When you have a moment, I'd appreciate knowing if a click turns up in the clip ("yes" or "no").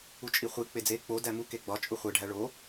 no